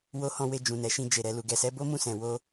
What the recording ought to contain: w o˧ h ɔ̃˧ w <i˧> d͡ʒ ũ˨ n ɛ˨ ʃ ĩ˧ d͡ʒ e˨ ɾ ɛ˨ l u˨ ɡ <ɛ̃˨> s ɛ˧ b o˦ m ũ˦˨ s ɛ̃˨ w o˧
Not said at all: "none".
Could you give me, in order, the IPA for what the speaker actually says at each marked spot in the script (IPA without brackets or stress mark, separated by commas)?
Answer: e˧, ɛ˨